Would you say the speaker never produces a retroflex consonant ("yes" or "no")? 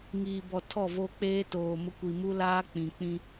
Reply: yes